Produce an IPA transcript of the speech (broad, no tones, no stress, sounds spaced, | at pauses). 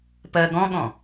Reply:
p ɜ ɡ ɔ̃ ɠ ɔ̃